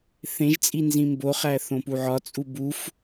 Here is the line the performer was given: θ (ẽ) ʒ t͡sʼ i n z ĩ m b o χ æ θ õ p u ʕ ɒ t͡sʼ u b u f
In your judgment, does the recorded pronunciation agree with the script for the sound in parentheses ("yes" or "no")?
yes